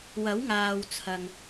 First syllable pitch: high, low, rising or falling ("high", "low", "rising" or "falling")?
rising